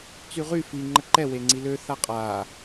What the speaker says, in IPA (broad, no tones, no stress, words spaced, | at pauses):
t͡syʁy fi ŋ͡ǃəǃɛ weŋ͡ǀilø θaqʼaː